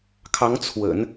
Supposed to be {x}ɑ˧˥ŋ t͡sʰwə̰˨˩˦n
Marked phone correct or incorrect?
incorrect